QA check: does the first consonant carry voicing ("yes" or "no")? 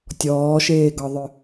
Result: no